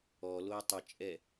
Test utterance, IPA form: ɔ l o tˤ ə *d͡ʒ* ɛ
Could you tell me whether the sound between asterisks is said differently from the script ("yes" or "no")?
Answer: yes